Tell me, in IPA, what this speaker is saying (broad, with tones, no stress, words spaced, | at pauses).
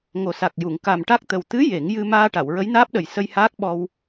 ŋo˨˩sa˨˩k̚ju˨˩˨ŋ ka˨˩mʈa˦˥k̚t̪ə˨˩w t̪ɨ˧˥ je˨˩˦ŋjɨ˧ maː˧ ʈa˨˩˨wɹə˧˥jnaː˦˥p̚ɗə˨˩j sə˧jhaː˦˥k̚ɓɔ˧w